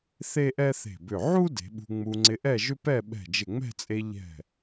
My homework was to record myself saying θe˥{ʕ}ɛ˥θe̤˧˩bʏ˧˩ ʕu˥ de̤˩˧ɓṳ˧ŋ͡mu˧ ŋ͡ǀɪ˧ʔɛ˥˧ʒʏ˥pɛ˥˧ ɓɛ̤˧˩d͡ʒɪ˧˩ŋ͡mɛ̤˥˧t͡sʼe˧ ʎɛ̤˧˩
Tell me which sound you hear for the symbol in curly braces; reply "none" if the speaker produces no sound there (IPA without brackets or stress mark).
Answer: ʔ